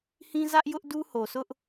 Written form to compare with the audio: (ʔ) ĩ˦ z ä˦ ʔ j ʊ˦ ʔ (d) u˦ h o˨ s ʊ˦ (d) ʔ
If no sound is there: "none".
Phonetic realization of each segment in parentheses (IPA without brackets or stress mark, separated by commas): h, d, none